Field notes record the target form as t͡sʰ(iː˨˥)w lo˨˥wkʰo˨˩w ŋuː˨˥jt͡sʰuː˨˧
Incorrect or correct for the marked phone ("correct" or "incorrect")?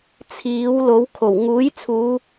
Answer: correct